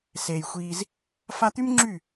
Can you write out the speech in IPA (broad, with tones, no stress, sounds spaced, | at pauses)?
s eː˨ j xʷ iː˧ z | f a˧ t̪ y˦ m ŋ͡ǁ y˦˨